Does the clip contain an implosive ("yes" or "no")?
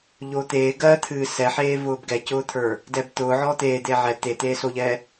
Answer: no